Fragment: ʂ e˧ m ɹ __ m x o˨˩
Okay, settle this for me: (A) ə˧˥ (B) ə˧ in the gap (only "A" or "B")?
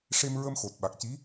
B